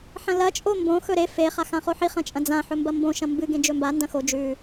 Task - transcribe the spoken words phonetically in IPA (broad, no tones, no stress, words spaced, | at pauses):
ħɐ̃lɐ t͡ʃʼombõ xɵɾe fe χaxãχoħi χɐ̃t͡ʃʼɐ̃d͡zã ħɵmbɐmbõ ʃɐ̃mbɨ ɡẽd͡ʒɵmba ndɐ̃xo d͡ʒʉ